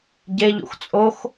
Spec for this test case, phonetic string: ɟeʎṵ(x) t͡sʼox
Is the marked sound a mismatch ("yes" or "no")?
no